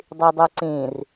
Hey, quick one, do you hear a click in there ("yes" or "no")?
yes